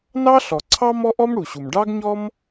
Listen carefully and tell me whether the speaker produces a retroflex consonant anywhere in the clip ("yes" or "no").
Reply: yes